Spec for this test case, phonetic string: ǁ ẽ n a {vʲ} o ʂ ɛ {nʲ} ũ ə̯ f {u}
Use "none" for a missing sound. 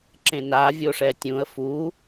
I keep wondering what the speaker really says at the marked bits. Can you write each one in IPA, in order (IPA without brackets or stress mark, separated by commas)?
vʲ, tʲ, u